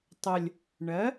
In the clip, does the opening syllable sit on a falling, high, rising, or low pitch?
low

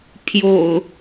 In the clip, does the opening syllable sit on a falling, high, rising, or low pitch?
low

